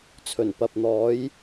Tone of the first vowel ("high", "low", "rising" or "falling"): low